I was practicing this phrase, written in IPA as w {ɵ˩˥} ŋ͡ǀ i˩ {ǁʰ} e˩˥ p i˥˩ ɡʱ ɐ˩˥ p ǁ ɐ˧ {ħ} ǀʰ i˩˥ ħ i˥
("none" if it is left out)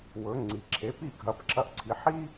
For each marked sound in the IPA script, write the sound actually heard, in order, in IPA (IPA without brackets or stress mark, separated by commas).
ɵ˩˥, ǁʰ, ʔ